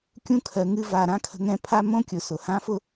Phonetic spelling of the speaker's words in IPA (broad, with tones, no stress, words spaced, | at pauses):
kʲũ˧kʰɜ˨ŋɨ˧va˨ ɾã˦kʰə̤˧ ŋɛ̃˦pʰa˦ mõ˦kʲʊ˨sʊ˨ hã˦fʊ˦